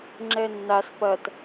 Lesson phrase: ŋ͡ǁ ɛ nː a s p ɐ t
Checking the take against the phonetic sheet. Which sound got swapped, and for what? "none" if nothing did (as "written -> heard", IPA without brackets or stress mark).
none